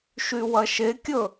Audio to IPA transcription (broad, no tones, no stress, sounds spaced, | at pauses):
ʃ y w ɐ ʃ e kʲ ɵ